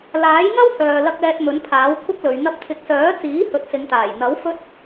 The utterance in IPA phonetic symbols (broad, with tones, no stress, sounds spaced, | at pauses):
l aː˨˥ j ŋ ɐ˥ w h œː˨ l ɐ˨ k̚ ɛː˨ t̚ m ɵ˨˥ n pʰ aː˨˥ w kʷʰ ɐ˥ k̚ l ɵ˨˧ ɥ n̪ ɐ˧ p̚ t̪ʰ ɪ˨˥ k̚ s œː˨˥ t͡s iː˨˥ h ɵ˨˥ t̚ s ɪ˨˧ ŋ t̪ aː˨˩ j n̪ ɐ˨˥ w f ɵ˥ t̚